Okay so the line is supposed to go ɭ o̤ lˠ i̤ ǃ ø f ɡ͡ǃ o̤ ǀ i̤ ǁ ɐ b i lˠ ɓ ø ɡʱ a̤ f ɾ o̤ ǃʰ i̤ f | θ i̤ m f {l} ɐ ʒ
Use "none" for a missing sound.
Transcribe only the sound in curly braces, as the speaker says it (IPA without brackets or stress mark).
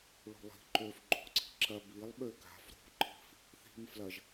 l